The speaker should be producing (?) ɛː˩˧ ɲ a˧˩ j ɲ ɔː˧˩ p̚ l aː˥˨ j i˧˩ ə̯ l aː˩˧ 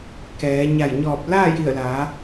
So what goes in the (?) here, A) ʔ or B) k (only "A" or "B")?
B